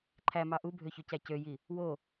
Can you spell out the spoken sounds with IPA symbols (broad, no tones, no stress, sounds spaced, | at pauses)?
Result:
ǃʰ æ m ɑ ʔ u bʱ ø ç ø c æ c ø j i | w o